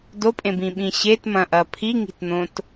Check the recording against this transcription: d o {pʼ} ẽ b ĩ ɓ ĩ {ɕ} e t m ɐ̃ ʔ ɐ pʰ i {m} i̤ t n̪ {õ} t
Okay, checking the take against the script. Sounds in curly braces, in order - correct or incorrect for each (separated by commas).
correct, correct, incorrect, correct